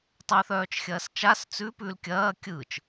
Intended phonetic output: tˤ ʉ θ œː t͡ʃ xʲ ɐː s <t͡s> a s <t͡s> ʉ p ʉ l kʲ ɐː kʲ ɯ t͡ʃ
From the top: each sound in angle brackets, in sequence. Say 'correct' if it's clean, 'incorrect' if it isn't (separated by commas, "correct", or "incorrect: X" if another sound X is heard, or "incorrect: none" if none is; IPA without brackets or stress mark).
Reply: incorrect: t͡ʃ, correct